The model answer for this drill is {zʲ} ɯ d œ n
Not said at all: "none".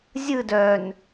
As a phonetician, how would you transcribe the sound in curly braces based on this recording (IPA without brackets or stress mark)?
zʲ